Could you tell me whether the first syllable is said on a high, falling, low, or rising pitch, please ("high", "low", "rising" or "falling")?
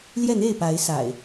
falling